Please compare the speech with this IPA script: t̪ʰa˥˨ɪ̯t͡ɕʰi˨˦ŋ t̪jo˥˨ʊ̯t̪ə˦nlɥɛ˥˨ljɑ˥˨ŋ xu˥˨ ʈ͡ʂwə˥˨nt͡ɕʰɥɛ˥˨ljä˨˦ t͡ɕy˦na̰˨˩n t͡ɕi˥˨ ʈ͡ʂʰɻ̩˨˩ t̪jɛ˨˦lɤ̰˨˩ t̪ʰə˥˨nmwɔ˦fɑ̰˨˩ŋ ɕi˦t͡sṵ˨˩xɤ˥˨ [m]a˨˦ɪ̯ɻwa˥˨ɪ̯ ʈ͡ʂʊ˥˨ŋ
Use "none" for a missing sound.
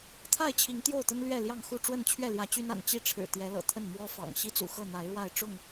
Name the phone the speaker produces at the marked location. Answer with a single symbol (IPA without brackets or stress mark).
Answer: n̪